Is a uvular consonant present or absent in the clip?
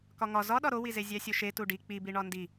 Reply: absent